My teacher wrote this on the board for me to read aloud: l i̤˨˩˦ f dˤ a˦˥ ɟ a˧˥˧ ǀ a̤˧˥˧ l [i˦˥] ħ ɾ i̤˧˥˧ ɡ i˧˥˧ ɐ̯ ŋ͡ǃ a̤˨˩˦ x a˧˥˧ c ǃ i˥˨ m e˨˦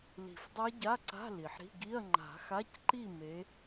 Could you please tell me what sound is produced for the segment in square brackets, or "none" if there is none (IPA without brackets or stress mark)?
i˩